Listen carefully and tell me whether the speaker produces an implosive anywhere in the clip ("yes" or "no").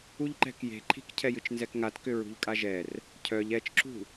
no